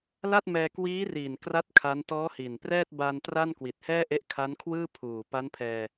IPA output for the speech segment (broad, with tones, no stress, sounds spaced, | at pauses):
l a˥˩ t̚ m ɛː˧ k w iː˦˥ r iː˨˩ n k r a˥˩ t̚ kʰ a˦˥ n t ɔː˦˥ h i˨˩ n p r ɛː˥˩ t̚ b a˧ n t r a˥˩ n k w i˨˩ t̚ h ɛː˥˩ ʔ e˦˥ ʔ kʰ a˦˥ n kʰ w ɯː˥˩ pʰ uː˨˩ p a˦˥ n pʰ ɛː˧